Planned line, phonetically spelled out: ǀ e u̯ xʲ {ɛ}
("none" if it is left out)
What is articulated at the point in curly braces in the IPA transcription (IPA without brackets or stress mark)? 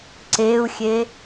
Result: e